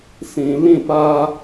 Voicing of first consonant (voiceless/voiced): voiceless